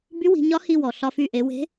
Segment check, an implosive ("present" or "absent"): absent